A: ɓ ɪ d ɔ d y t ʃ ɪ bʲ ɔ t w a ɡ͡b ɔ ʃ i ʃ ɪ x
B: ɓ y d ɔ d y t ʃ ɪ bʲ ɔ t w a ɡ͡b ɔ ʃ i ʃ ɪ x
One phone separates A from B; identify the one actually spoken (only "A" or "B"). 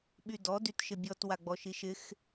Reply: B